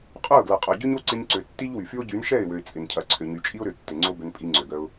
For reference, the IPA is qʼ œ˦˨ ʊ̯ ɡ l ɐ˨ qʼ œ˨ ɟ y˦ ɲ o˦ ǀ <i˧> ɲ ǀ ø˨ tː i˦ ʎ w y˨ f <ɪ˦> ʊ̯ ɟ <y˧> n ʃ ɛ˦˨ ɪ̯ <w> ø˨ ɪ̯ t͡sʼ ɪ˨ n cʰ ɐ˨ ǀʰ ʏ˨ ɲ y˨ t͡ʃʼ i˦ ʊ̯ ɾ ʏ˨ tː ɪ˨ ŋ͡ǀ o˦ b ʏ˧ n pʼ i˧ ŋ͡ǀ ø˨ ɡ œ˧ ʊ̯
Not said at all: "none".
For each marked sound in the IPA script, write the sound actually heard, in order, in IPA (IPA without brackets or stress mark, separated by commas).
ɪ˧, y˦, y˨˦, w